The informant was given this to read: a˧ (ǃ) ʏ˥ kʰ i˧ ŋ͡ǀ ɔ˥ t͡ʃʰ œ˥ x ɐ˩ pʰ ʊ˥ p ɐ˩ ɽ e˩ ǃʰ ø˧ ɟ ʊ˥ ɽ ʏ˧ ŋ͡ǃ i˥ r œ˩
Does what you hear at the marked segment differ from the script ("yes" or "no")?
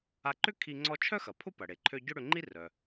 no